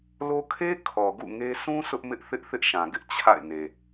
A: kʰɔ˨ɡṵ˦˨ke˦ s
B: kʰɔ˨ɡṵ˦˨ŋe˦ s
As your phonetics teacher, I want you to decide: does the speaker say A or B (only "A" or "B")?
B